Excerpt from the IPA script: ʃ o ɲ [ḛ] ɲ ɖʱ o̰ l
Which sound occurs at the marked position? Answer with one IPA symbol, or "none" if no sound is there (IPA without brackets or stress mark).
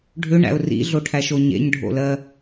ḛ